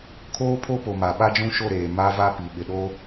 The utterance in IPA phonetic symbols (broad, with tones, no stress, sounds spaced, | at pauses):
kʰ oː˦ pʰ o˦ p o˨ m a˨ ɓ a˦ d͡ʒ ũ˦ ʃ o˦˨ ɾ eː˨ m a˦ v a˦ p i˨ ɓ ɪ˨ ɗ o˦